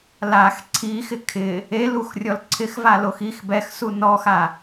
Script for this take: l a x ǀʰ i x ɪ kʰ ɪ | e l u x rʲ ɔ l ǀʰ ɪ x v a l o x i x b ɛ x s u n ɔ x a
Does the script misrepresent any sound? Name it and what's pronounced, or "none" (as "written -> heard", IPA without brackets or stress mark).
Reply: none